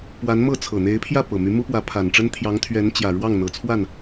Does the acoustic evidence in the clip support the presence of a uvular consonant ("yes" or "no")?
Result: no